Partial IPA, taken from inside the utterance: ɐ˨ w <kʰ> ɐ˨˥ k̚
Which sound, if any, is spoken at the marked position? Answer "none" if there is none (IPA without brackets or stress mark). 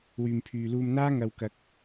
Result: k